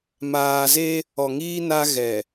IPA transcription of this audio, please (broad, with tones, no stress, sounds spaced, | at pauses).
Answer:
m aː˨ z e˦ | ɔ˨ ŋ iː˦ n a˦ ɣ ɛ˨